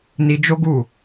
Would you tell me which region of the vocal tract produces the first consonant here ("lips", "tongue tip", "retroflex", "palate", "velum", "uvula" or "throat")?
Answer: tongue tip